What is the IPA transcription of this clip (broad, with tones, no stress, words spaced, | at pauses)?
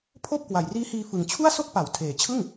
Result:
pʰoː˥˩p̚kwa˨˩jriː˦˥ hiː˧fɯ˨˩ŋt͡ɕʰu˥˩a̯ so˥˩k̚pa˩˦wtʰeː˨˩t͡ɕʰɯ˥˩ŋ